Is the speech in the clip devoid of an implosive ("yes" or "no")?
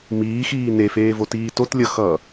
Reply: yes